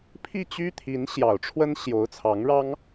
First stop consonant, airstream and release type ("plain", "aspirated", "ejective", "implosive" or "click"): aspirated